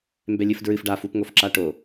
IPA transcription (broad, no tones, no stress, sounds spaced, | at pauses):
m b ɛ lʲ ɨ f d ɹ ɨ f ɖ a f u p ŋ o f ǁ a ʈ o